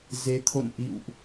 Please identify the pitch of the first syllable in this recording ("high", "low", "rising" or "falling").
rising